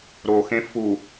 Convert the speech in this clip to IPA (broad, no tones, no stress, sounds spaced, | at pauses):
ɾ o x ẽ f u